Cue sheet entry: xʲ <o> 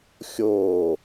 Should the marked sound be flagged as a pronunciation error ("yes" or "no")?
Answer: yes